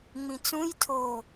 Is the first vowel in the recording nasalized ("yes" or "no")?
yes